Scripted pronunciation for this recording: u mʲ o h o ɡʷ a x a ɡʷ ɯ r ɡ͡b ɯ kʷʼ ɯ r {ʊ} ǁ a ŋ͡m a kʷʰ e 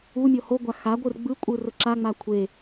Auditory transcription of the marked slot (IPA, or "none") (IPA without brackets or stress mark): ʊ